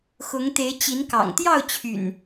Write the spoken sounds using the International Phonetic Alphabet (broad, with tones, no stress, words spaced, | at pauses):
xʊ˨˦ŋt̪e˨˦ɪ̯ t͡ɕi˨˦nkɑ̰˨˩ŋ t̪jɑ˥˨ʊ̯t͡ɕʰy̰˨˩n